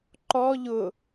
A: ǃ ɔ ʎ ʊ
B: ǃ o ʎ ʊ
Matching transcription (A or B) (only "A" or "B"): A